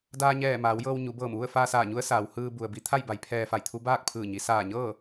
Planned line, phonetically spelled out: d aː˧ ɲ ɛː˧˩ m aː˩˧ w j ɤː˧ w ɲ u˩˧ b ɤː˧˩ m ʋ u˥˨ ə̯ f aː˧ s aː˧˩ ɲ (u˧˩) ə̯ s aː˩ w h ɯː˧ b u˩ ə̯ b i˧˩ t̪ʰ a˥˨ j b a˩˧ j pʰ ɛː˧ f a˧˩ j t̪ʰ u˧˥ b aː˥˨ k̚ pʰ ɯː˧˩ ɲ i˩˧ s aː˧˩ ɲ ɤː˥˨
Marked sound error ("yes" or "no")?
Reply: yes